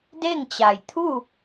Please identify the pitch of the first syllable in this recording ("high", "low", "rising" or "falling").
falling